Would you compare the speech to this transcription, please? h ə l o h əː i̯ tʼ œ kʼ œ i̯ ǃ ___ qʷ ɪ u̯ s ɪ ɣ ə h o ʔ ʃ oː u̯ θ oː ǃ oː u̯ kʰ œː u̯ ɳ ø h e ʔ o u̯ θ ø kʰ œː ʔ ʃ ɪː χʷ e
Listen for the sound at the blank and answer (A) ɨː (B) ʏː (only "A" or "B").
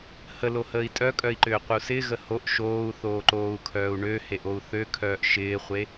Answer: B